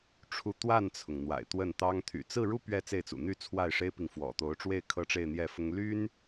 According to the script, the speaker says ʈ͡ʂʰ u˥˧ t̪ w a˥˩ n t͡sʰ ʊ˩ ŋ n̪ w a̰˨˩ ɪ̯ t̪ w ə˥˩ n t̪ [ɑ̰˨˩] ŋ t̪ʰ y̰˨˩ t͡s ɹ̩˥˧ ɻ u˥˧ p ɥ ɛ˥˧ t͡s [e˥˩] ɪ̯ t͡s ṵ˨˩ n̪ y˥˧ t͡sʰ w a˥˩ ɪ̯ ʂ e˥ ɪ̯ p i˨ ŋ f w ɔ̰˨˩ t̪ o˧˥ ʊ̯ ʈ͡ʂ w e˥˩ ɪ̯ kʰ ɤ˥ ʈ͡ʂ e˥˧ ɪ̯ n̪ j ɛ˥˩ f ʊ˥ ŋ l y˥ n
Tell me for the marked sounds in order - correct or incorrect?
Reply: incorrect: ɑ˥, correct

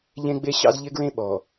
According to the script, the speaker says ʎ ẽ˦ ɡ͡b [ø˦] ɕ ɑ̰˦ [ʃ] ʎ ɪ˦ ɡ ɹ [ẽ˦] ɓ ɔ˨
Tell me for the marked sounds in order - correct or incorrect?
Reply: incorrect: e˦, incorrect: z, correct

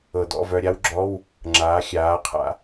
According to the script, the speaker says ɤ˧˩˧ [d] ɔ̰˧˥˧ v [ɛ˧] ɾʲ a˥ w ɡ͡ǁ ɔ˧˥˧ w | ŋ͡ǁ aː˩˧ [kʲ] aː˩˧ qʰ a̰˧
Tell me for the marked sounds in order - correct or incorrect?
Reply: correct, incorrect: œ˧, incorrect: xʲ

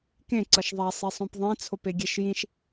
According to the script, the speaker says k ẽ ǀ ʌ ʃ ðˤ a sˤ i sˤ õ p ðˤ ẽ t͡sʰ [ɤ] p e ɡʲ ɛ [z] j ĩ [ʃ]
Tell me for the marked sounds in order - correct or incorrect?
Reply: incorrect: o, incorrect: ʃ, correct

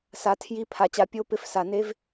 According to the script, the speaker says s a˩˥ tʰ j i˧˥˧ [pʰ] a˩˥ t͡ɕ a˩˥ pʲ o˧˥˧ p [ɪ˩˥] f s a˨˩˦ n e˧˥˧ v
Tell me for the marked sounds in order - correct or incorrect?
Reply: correct, incorrect: ɪ˧˥˧

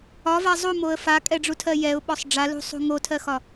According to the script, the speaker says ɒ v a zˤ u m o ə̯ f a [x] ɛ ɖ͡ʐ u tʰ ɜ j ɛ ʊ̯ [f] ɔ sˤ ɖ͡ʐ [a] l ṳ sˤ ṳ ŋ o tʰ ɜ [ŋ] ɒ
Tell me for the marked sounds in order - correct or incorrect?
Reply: incorrect: kʼ, incorrect: ɓ, correct, incorrect: x

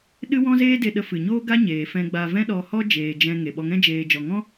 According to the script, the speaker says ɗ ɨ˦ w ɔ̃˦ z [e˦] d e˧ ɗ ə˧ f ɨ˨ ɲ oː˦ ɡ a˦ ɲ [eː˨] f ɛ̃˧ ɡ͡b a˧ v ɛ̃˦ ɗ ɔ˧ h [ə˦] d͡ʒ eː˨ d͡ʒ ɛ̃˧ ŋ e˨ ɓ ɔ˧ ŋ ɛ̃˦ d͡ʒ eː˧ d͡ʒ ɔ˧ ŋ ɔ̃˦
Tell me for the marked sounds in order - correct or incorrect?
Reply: incorrect: eː˦, correct, incorrect: ɔ˦

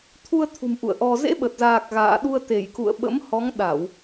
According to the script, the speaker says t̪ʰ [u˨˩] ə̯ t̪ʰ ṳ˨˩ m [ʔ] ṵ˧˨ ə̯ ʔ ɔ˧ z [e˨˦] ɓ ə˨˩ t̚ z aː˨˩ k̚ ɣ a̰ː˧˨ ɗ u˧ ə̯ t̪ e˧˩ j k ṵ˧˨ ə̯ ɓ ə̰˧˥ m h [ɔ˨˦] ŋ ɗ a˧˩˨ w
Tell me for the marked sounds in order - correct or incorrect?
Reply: incorrect: u˧, correct, incorrect: ḛ˧˥, correct

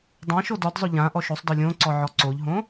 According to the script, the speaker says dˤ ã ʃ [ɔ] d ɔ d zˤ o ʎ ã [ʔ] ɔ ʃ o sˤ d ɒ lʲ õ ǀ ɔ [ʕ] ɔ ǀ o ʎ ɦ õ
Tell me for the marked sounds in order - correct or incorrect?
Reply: incorrect: o, correct, correct

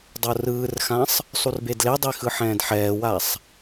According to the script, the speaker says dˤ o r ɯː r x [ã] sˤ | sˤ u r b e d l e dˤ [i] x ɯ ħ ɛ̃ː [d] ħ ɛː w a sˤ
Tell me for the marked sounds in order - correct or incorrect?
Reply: correct, correct, correct

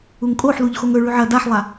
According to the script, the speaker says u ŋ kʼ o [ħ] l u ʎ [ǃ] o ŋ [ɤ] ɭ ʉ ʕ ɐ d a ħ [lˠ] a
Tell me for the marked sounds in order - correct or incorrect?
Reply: correct, incorrect: x, incorrect: ɵ, correct

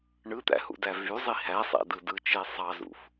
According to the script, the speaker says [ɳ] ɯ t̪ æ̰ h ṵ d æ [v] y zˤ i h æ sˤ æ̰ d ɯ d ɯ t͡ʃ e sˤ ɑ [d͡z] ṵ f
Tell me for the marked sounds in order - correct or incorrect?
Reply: correct, correct, incorrect: z

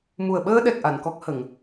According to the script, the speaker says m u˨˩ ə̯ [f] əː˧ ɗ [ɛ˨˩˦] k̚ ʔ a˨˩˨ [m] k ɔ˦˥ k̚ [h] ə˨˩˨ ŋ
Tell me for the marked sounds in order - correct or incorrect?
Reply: incorrect: ɓ, incorrect: ɛ˨˩, incorrect: n, correct

